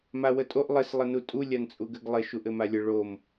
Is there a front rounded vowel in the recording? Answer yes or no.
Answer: no